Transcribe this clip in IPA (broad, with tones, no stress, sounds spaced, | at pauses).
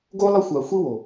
ɡ o˦ lˠ ə˦ xʷ a˨ xʷ i˦ w o˨